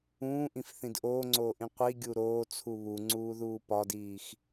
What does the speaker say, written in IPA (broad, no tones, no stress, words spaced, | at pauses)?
ũːʔĩfθĩd ʔoːŋ͡ǀoːʔĩ qʷiɡʲu ɾoːt͡sʰu βuŋ͡ǀuːðuː pɒdiːx